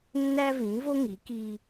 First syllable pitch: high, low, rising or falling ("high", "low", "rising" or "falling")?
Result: high